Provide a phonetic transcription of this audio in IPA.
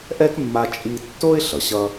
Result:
ʔ ɛ˦ k mː a˧ t͡ʃʼ i˧ tː o˦ ɪ̯ ɬ ʌ˨ ɕ ʌ˦

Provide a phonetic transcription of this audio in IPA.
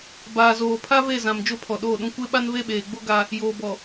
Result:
b aː˨ z oː˨ pʰ a˦ v e˦˨ z ã˨ m d͡ʒ o˦ pʰ ɔ˨ ɗ oː˦˨ ɗ ũ˦ kʷ e˦ ɓ a˦ n v e˦ ɓ eː˨ ɡ͡b o˦ ɡ a˦ | j oː˨ b ɔ˨

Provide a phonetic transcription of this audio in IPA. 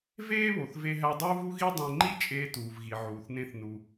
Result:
v eː˥ β o˩ θ v e˧ ɦ æ˧ dˤ uː˥ v u˥ ɣ i˥ dˤ ẽ˧ ŋ͡ǃ i˥ t͡ʃʼ eː˧ t uː˩ v ɣ i˩ ʕ uː˩ θ n ẽ˧ θ n u˩

